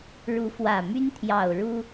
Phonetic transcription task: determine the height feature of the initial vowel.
high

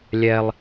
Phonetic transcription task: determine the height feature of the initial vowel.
mid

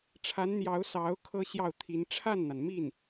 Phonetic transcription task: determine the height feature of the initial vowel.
low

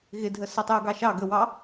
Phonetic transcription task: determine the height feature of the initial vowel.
high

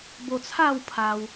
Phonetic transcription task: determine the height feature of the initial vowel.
mid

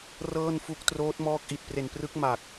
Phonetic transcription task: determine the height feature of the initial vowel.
mid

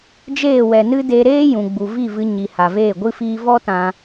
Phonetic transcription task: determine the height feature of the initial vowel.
mid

